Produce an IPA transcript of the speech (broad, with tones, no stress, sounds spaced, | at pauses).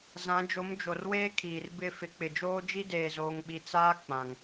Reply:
z ã˨˦ d͡ʒ o˨˦ m d͡ʒ o˨ r w eː˦ kʰ iː˨ r b ɪ˦˨ f ɪ˨˦ k͡p ɪ˨ d͡ʒ oː˦ d͡ʒ i˦ d eː˨ z oː˨ ŋ ɓ i˨ t͡s aː˦ k͡p ã˨ ŋ